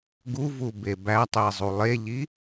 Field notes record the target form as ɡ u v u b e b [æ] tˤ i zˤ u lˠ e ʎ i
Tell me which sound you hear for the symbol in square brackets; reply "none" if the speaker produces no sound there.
æ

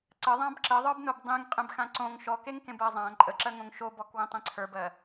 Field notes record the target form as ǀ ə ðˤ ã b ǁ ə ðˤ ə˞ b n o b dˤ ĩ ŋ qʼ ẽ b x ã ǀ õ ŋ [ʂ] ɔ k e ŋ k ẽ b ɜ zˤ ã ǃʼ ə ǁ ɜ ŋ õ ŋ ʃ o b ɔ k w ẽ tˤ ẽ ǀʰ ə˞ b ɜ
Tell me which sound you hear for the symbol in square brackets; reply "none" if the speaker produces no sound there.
ʃ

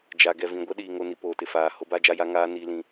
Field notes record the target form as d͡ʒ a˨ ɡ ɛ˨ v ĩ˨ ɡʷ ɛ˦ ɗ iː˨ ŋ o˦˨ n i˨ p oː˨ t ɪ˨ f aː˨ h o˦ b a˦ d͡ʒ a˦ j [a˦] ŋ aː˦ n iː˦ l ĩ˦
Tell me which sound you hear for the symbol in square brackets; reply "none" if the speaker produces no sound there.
a˦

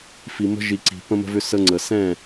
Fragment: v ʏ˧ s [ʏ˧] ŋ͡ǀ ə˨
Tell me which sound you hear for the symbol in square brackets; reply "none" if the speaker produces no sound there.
ə˧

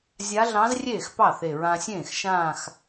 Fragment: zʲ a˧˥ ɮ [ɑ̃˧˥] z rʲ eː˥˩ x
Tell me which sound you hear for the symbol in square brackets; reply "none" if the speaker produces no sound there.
ɑ̃˧˥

